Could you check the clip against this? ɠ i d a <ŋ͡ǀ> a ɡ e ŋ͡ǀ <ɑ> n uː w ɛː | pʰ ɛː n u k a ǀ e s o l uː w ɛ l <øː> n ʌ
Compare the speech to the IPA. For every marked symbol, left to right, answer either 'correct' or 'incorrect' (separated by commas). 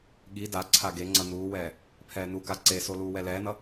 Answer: incorrect, incorrect, incorrect